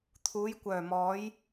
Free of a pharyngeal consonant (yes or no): yes